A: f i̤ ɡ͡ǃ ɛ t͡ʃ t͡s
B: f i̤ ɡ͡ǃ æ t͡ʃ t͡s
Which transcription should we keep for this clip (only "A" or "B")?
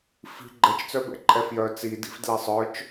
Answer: A